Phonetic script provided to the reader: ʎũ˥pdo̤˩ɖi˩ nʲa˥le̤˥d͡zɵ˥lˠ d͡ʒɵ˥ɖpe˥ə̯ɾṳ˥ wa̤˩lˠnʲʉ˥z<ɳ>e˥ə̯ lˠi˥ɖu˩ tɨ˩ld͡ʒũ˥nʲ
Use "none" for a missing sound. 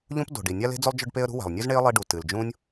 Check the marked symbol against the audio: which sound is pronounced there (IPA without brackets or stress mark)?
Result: ɳ